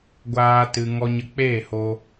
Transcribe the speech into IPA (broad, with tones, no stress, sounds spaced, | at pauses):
ɡʷ aː˦ t ɨ˧ ŋ ɔ˧ ɲ ə˧ k͡p eː˦˨ h o˧